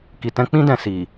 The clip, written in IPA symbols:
k i˨ t ɛ̃˨˦ k͡p ĩ˧ d ɛ̃˨ s i˨

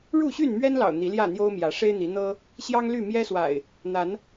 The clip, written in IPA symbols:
ɻ u˥˨ ɕ y˥˨ n m ɥ ɛ˦ n l ɑ̰˨˩ ʊ̯ n̪ i˨˦ l j ä˥˨ n̪ j o˦ ʊ̯ m j ä˨˦ ʂ e˦ ɪ̯ n̪ i˨˦ n̪ ɤ˦ | ɕ j ɑ˦ ŋ l y˥˨ m j ɛ˦ s w a̰˨˩ ɪ̯ | n̪ a˨˦ n

